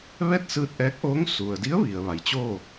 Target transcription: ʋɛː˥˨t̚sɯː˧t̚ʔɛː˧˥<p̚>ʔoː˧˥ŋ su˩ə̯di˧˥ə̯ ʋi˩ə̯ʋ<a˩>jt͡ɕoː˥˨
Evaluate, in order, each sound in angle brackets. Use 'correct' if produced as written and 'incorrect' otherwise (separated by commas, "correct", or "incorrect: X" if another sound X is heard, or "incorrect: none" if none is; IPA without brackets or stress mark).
incorrect: k̚, correct